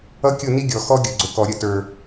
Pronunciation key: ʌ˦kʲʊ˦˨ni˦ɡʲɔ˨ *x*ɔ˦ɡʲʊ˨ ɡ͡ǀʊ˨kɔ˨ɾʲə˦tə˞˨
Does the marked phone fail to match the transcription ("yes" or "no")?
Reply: no